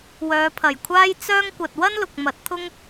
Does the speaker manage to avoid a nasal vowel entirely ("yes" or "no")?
yes